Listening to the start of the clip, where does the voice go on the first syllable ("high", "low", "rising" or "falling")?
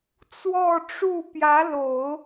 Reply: falling